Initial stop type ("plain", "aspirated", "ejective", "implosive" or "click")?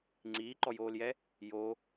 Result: click